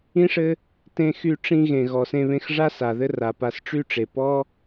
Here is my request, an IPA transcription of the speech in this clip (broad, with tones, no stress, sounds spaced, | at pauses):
ĩ˥ ʂ ɘ˥ | t ẽ˧ x y˧ ʈ͡ʂ ĩ˧ ɣ ẽ˩ ɣ ɔ˩ s ẽ˧ β ẽ˧ x ʐ a˥ s a˩ ð ɘ˥ r a˩ p a˧ s ʈ͡ʂ y˥ ʈ͡ʂ e˩ p ɔ˥